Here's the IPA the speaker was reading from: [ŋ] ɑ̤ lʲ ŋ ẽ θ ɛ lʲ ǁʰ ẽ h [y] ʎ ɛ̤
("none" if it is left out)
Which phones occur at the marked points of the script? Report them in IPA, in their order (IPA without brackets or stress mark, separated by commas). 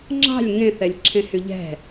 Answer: ŋ͡ǁ, y